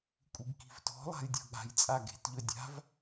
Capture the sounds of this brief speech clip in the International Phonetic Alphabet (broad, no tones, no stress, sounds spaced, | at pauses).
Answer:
kʷʼ i ɡ k i̤ v t ɔ̤ lˠ a̤ j dʲ ɔ̤ ɠ a̤ j t͡sʼ a ɡ e̤ t ʎ ɵ dʲ a̤ v